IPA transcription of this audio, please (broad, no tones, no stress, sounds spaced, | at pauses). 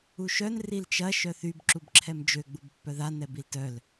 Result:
u ʃ œ n r i l t͡ʃ ɐ ʃ œ θ y b ǁ u b ǁʰ ɛ m d͡ʒ ø ɡ͡b u b pː œ ð a n ɛ b i l t œ l